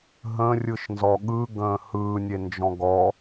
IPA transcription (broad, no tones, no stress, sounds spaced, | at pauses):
ɦ ə̃ rʲ ɯ ʃ n z ɔ ɠ ɯ ɡ ə̃ː h ɯː nʲ e n d͡ʒ ɔ̃ ɡ ɔ